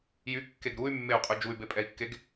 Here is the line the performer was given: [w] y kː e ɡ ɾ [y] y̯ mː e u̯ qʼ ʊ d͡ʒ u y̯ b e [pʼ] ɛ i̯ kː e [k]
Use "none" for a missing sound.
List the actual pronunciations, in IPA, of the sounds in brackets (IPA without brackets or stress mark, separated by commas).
j, u, pʼ, ɡ